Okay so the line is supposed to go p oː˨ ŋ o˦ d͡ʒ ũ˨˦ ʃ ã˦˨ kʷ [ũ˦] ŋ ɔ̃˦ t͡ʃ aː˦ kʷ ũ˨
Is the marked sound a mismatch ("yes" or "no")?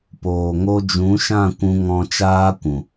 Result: no